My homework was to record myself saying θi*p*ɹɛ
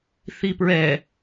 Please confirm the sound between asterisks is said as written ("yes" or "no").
yes